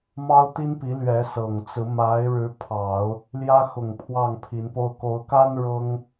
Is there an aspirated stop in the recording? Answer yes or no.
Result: yes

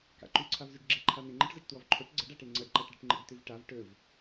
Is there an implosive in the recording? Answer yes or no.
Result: no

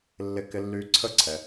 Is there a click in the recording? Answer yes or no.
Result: yes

